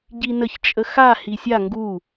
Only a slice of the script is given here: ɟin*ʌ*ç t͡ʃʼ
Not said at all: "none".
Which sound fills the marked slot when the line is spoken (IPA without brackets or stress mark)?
ə